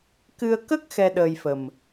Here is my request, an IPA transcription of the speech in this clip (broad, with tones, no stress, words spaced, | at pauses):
kɨ˧ə̯ kə˦˥k̚ xɛ˧ ɗəː˧jfə˨˩m